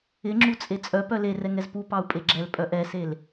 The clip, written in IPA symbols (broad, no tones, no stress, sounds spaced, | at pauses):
ɪ ŋ͡ǁ u t͡sʼ e t͡sʼ œ p œ l e r ɛ ŋ ɛ z p u p ɑ u̯ pʼ e ɡ͡ǁ ɛ l pʼ œ ʔ ɛ s e l